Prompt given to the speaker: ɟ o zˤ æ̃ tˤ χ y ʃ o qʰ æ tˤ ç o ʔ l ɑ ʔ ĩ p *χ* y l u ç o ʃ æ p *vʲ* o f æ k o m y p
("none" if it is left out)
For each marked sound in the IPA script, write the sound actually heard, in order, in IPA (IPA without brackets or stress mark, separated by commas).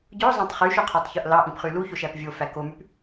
χ, vʲ